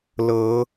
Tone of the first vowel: rising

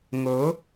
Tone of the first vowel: rising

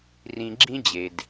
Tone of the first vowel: low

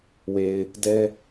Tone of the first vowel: low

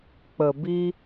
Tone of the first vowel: low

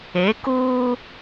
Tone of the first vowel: rising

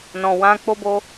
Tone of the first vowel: low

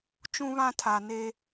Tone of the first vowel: high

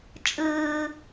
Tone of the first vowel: low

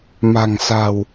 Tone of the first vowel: low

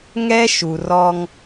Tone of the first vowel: high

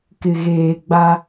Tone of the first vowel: low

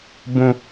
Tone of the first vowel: low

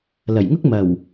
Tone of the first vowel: low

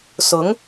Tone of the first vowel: rising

